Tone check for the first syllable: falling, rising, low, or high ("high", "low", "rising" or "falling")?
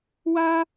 high